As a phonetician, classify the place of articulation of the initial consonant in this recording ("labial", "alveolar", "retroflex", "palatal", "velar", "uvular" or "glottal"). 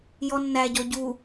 palatal